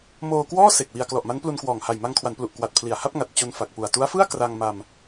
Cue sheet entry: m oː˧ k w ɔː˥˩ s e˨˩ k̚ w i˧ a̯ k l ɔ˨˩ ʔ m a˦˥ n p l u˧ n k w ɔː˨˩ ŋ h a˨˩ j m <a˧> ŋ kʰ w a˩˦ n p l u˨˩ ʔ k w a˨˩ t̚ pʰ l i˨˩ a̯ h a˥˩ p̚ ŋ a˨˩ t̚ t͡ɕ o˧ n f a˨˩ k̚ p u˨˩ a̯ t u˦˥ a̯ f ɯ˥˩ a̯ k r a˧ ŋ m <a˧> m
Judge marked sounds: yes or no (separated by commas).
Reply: yes, yes